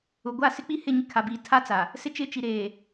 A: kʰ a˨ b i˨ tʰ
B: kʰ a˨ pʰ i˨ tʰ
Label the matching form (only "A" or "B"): A